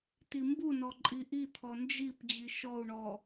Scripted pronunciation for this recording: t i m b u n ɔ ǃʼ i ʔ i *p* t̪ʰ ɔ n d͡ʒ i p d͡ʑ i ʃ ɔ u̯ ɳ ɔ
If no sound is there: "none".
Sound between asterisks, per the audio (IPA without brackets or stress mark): none